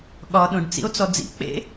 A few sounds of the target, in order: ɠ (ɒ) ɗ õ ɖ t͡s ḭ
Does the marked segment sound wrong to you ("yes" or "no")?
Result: no